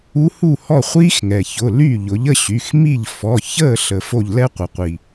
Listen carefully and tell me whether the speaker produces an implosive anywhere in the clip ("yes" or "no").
no